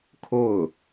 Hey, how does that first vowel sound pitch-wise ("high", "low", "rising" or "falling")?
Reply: falling